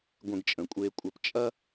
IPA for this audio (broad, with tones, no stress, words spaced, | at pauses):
ɡʷẽ˧ɡt͡ʃʼə̃˩˧kʷʼeː˧kʷʼɐ˧p t͡ʃʼɐ˥